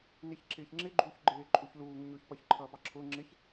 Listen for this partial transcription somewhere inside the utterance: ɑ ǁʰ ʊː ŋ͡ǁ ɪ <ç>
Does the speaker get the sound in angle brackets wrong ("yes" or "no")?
no